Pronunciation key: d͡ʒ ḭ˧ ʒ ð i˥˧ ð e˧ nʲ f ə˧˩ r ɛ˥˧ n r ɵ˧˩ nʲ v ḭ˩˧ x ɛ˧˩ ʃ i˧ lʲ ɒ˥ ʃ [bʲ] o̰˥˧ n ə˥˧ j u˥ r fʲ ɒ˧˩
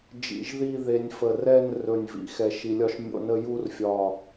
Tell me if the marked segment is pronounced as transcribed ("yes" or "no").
no